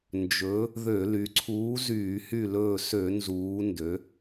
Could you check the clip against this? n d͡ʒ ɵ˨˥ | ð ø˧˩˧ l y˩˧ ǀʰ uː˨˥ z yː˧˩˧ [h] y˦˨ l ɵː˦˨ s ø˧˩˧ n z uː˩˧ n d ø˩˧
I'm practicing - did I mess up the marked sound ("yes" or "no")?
no